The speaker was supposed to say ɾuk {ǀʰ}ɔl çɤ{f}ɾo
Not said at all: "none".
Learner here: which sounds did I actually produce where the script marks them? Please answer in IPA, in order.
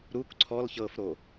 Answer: ǀʰ, f

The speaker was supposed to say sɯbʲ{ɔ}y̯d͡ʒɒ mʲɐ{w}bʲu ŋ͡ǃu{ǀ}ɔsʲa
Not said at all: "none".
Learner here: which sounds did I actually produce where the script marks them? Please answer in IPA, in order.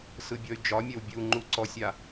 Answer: ɔ, w, ǀ

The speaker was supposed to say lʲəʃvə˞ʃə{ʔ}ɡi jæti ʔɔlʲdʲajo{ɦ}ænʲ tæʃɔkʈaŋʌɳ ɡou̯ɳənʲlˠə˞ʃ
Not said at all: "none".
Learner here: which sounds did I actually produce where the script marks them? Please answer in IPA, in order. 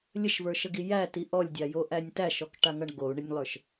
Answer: none, ʔ

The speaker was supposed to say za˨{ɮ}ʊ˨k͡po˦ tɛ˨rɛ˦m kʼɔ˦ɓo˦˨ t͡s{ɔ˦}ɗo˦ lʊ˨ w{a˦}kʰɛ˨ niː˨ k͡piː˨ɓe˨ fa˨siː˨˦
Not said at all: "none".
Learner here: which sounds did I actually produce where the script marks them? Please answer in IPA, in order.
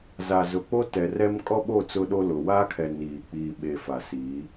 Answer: z, ʊ˦, a˦

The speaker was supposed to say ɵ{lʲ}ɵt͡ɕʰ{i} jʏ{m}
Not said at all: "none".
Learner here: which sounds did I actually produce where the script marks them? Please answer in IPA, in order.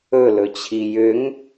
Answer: l, i, ŋ

